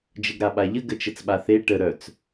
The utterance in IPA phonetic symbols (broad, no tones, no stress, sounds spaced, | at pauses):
d͡ʒ ə ɡ ɾ a ɓ a ʎ ə ɡ ə t͡ʃ ə t͡s ɓ a θ e ʈ ə ɾ œ t͡s